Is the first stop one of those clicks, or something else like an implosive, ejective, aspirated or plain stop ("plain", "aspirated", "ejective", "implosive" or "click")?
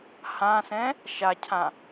aspirated